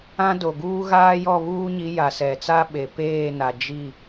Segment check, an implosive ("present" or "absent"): present